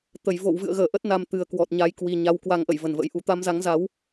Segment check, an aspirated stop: absent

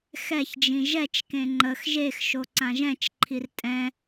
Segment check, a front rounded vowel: absent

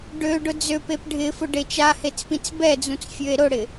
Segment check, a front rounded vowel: present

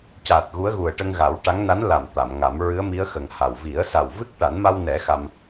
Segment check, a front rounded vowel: absent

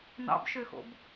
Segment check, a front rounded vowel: present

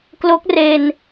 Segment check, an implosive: absent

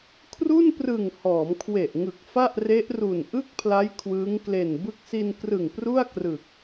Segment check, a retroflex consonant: absent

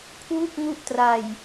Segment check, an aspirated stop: present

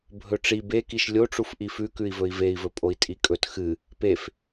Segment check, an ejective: present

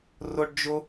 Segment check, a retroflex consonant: present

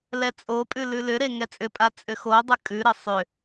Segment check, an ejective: present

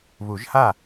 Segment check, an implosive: absent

